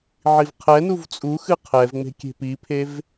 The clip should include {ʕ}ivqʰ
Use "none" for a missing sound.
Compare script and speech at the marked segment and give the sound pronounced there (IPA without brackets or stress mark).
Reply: ʕ